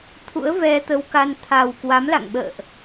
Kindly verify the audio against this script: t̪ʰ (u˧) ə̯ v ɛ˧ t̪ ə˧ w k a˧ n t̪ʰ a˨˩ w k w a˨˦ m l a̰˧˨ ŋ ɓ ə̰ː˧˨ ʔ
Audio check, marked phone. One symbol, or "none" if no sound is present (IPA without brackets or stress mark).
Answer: ṵ˧˥